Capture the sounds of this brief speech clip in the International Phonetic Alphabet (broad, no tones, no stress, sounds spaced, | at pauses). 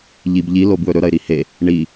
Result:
ʎ i b ʎ i l o b w ɵ ɾ ɵ ɾ ɐ ɪ̯ ɾ i h e | ɳ i